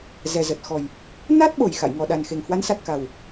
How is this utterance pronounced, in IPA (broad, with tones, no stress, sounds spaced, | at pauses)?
z ɛ˨˩ z ə˨˩ t̚ x ɔ˨˩ j | n a˦˥ t̚ ɓ o˨˩ j x a̰˧˨ j ŋ ɔ˨˩ ɗ a˨˩ n x e˨˩ ŋ h w a˨˦ n s a˨˩ t̚ k a˨˩ w